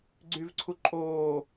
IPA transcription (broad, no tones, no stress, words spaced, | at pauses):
ɡ͡ǀyvǀʰu ǃʼoː